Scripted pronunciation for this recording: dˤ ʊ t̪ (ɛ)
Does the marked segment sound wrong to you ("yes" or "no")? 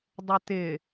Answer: yes